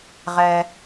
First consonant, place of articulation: uvular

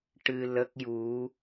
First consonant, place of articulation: retroflex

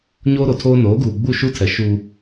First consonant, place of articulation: palatal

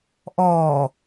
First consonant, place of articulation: glottal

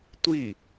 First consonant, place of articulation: alveolar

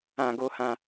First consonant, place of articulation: velar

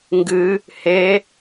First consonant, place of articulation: velar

